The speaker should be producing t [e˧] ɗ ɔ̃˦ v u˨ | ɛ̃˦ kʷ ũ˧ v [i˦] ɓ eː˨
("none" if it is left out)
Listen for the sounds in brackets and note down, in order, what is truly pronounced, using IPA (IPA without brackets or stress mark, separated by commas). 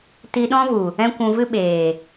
i˧, ɨ˦